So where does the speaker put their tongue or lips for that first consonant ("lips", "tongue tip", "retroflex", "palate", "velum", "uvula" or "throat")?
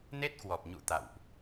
tongue tip